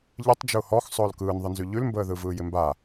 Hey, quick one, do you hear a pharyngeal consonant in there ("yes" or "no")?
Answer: no